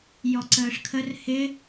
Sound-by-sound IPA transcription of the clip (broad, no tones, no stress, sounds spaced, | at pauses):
j ɔ ǀ əː ʂ kʰ ə r h ɪ